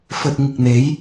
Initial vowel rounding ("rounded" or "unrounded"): rounded